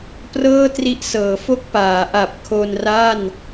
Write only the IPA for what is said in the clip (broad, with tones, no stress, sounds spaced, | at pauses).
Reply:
p r ɤː˥˩ t r i˦˥ ʔ s ɤː˩˦ f o˥˩ k̚ p aː˩˦ ʔ a˨˩ p̚ kʰ o˧ n r a˥˩ n